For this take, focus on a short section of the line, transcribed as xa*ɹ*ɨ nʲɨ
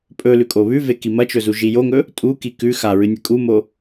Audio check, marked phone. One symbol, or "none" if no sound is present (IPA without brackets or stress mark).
ɹ